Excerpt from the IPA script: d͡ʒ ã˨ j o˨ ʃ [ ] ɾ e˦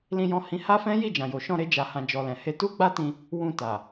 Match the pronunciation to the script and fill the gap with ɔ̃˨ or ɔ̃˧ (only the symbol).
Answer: ɔ̃˧